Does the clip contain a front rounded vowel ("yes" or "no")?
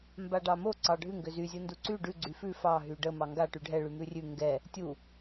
yes